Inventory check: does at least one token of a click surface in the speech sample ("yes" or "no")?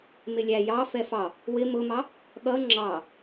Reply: yes